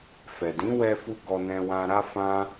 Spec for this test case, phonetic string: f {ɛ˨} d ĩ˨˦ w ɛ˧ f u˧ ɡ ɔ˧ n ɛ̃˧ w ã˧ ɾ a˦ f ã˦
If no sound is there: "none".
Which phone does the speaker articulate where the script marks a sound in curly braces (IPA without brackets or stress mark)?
ɛ˨